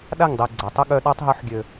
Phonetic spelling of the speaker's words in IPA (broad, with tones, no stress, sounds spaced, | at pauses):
ɗ a˦˨ ŋ dˤ i˨ ɡ͡ǀ a˨ tˤ ə˦ ɠ œ˧ ɗ ɔ˧ tˤ ɦ u˨˦ ħ ɡʲ ø˨